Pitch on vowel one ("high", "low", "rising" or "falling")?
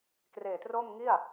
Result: low